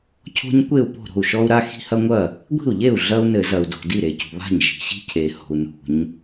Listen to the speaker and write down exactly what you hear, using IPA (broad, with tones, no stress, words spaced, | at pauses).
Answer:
cʰo̤˦ɲkʷe˥˩u̯po̤˥˩ ɾo̤˥˩u̯ʃɔ˦u̯ɾa˦ xi̤˦hɐ˦ŋʷɐ˥˩ | ɡʷi̤˥˩u̯ʎe˥˩u̯ ɮɐ˦u̯nɘ˧˩˧zɐ˩u̯ do̤˩ di˥˩ɾe˩cṳ˩βa̤˥˩ɲ ʒi̤˩ɕi̤˦cʰe˩ ho̤˩u̯ nṳ˧˩˧ɲ